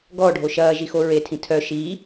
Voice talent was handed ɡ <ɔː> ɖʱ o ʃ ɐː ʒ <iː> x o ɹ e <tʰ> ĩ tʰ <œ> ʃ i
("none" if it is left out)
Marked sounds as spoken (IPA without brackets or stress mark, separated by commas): ɔː, i, tʰ, œ